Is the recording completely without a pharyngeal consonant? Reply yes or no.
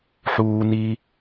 no